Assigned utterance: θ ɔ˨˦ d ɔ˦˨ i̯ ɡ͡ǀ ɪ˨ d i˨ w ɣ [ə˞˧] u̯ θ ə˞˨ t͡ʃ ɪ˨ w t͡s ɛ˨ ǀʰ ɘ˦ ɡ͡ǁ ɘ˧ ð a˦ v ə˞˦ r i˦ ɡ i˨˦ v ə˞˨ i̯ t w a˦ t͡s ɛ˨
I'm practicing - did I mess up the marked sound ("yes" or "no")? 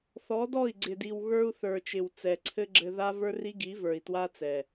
no